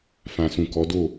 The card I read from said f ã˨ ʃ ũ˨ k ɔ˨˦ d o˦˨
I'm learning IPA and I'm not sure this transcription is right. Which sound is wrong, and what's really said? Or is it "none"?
ʃ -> s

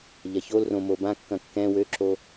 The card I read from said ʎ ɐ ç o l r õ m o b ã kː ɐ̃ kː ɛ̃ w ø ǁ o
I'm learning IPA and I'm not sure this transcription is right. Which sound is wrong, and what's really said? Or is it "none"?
none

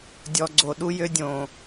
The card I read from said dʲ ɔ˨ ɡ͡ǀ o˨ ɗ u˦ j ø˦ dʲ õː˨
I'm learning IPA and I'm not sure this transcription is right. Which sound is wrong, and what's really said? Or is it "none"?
none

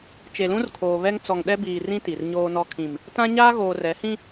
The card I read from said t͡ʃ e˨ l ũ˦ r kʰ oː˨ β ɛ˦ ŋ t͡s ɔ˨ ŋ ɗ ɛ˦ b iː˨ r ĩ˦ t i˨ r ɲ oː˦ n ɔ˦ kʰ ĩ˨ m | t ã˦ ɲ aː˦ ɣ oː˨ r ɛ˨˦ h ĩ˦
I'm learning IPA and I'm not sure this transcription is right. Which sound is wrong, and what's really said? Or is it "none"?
none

